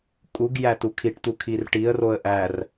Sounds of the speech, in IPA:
kʼ u ɡ j æ t u kʰ i ʈ t̪ u kʰ i r ʈ i ə̯ r o ə̯ ʔ æ r

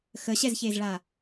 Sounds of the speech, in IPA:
x ə ɕ ɛ z ç e z ɭ a

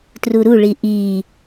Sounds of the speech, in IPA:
t r u ɾ u ɭ i ʔ i

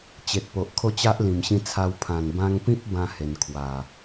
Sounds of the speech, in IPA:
t͡ɕ e˨ t̚ p o˨ ʔ kʰ o˥˧ t͡ɕ a˦ ʔ l ĩ˨˩ m ɕ ĩ˧ t͡sʰ a˧ w pʰ ã˨˩ n b ã˧ ŋ p ĩ˦ p̚ b ã˥˧ h e˨˩ n kʰ w a˨˩

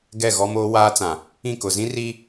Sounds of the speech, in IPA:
ɡ ɛ˦˨ ɣ ɔ˦ m oː˦ w aː˦ t͡s ã˨ | ĩ˦˨ k ʊ˨ z ĩ˦ r i˦

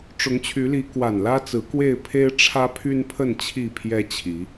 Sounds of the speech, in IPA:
ʈ͡ʂ ʊ˨˦ ŋ t͡ɕʰ y˨˦ l i˨˦ k w a˨˩ n l ä˦ t͡s ɹ̩˨˦ k w e˥˨ ɪ̯ pʰ e˦ ɪ̯ ʈ͡ʂʰ ä˦ pʰ y˦ n pʰ ə˥˨ n t͡ɕʰ i˥˨ pʰ j ɛ˦ t͡ɕʰ i˨˦

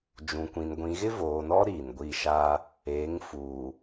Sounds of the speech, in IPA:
d͡ʒ ũ˨ kʷ ĩ˨ n ɡʷ ĩ˨ ɣ ɪ˦ v oː˨ n ɔ˦ ɾ i˨ n ɡʷ i˦˨ ʃ a˦ | eː˨˦ ŋ f uː˨

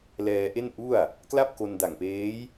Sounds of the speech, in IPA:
l ɛː˧ ʔ e˥˩ n ʔ u˥˩ a̯ | k l a˥˩ p̚ k o˧ n d a˨˩ ŋ p eː˦˥ j

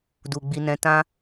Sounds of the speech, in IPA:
d u˨ ɡ͡b i˧ n ɛ̃˧ t ã˧

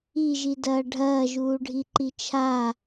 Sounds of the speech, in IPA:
i ʒ i d ɐː ɖʱ ɐː ʒ uː ɖʱ i ǃ i t͡ʃʰ a

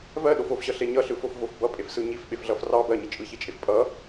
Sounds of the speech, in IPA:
v ɜ ɗ o f o f ɕ ʌ ɬ e ɲ ʌ ɬ ɯ f o f v o f b ʌ pʼ e f s ɯ ɲ i f ɓ e f ɮ ʌ f r ɑ b ɜ ɲ i t͡ʃʼ ɯ ç i t͡ʃʼ e f pʼ ʌ

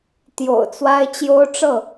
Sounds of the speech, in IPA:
t̪ j o̰˨˩ ʊ̯ t͡s w a˦ ɪ̯ t͡ɕ j o˦ ʊ̯ ʈ͡ʂ ɤ˥˨

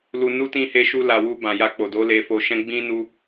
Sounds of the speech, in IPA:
l u˧ n u˦ t ĩ˦˨ h e˧ ʃ u˧ l a˨ w u˧ b ã˨ j a˧ k͡p o˨ d o˨˦ l e˧ f o˧ ʃ ɛ̃˦ ɡ͡b ĩ˦ n u˦

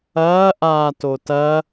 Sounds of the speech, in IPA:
ɐː ʔ aː t o t ɐ

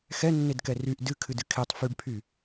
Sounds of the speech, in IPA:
x ɛ nː e d k ɛ r y ʔ d ɨ kʰ ɨ d ɨ kʰ e tˤ f y ɖ pʰ y

